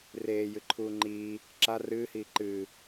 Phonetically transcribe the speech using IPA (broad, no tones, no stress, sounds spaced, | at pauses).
r eː j ɨ ǃʰ uː ŋ͡ǃ iː | ǁ a r ɨː h iː ǃ ɨː